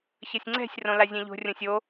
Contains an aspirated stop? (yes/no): no